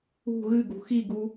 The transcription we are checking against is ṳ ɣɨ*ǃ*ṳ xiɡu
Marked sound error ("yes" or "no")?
yes